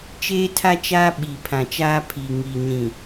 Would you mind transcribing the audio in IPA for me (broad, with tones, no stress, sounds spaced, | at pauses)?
t͡ʃ eː˦ tʰ a˦ t͡ʃ aː˦ ɓ i˨ pʰ ã˨ t͡ʃ aː˦ pʰ i˨ ŋ i˨ ɲ ĩ˨